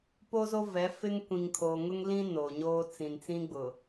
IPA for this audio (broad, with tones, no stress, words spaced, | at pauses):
po˦zo˦vɛ˨˦ fɪ˦ŋkʷĩ˨ŋkʰo˨ ŋʊ˦ŋlĩ˦ no˨ɲoː˦ t͡sĩ˨nt͡sĩ˦ɡ͡bʊ˨